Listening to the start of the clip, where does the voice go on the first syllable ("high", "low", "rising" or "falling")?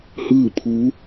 falling